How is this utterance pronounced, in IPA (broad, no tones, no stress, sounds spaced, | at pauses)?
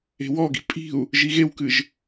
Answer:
e̤ w ɔ ɡ i̤ pʼ i̤ u̯ | ʒ i ɣ e w k ɨ ʒ